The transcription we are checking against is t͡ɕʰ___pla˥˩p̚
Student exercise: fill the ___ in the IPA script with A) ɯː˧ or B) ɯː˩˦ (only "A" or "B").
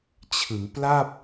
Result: B